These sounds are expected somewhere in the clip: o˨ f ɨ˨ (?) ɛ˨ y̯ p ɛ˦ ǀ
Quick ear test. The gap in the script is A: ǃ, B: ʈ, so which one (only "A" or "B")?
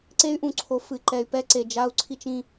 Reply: A